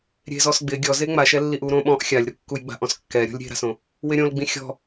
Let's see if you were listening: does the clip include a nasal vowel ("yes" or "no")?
yes